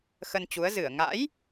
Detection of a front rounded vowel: absent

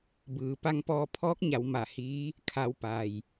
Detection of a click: absent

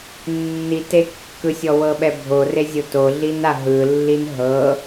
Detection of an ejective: absent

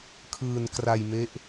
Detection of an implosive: absent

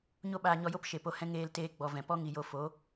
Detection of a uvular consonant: absent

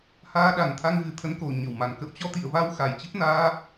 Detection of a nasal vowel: absent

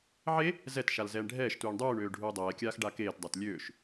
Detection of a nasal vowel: absent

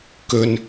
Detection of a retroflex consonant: absent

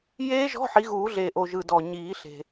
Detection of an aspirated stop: absent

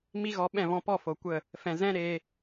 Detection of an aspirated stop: absent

